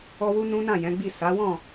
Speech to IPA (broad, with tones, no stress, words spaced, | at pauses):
ɔ˦wu˦ nũ˦nã˦˨jɛ̃˨˦ɡ͡bi˦˨ sa˨˦wɔ̃˦˨